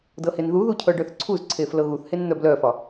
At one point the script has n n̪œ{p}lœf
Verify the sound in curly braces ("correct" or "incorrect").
incorrect